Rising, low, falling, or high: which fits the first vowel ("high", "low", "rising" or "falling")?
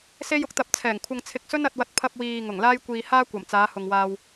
high